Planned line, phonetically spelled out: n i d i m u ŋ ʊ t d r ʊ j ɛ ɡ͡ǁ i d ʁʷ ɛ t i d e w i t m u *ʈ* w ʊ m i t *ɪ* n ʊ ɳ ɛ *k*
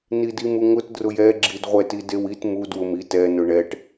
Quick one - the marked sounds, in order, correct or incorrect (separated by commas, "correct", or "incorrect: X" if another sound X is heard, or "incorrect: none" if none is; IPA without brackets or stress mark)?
incorrect: d, incorrect: ɛ, incorrect: ʈ